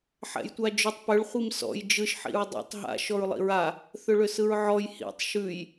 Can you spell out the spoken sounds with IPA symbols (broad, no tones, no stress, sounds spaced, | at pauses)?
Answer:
ħ ɛ̰ j tʷ a d͡ʒ ʏ tˤ p ʏ ɭ χʷ i m s ɔ̰ j d͡ʒ ɯ ʃ ħ ḭ ɹ dˤ ɛ̰ tˤ ɦ a̰ ʃ ɔ ɹ lˠ ḭ ɹ a | θ ʏ ɭ ʏ s ɯ ɹ ʕ ɔ j h ḭ tˤ ʃ ʉ j